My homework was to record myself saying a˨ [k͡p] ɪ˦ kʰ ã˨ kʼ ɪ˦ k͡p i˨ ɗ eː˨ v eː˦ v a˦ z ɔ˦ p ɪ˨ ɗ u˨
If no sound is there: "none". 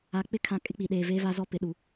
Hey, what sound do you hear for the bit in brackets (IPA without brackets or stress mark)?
k͡p